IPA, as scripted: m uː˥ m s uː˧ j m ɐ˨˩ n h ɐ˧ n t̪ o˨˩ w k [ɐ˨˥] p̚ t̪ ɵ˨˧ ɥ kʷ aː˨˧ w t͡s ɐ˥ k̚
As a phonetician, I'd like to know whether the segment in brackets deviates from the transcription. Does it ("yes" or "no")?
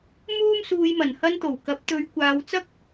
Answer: no